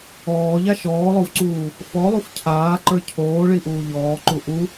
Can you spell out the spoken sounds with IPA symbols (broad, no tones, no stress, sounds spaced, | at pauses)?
ɔː ʎ a ʃ ɔː lˠ o v ǀ uː | f ɔ lˠ u f cʰ aː ǃ ə˞ cʰ oː ɭ i ʔ uː ʎ ɔː ǃ u ʔ u